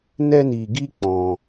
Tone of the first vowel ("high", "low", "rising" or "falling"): high